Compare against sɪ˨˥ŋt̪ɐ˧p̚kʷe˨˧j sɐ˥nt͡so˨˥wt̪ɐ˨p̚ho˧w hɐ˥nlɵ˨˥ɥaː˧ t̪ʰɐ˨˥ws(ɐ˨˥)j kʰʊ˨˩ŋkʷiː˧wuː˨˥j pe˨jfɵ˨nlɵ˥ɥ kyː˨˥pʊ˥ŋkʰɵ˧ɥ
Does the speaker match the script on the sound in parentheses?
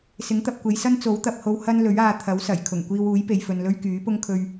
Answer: no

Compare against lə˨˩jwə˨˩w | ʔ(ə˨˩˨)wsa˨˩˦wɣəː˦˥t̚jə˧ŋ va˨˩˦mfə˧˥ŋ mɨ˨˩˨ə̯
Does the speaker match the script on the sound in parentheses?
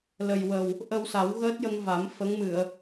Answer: no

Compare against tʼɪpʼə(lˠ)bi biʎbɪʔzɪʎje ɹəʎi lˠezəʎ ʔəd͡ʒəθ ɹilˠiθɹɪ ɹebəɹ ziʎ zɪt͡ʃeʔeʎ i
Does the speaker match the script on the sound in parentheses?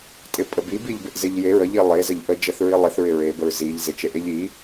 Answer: no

